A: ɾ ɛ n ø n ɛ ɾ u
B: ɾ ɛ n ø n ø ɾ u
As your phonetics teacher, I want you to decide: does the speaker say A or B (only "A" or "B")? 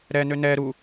A